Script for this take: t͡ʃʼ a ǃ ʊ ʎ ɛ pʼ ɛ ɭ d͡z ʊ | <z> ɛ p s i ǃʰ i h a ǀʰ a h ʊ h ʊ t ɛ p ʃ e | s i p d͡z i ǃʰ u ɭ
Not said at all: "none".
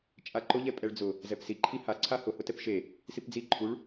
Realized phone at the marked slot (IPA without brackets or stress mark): z